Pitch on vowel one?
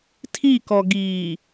falling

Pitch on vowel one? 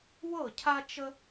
falling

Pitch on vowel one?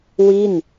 falling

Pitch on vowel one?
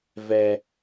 low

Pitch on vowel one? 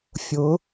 rising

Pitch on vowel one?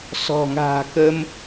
low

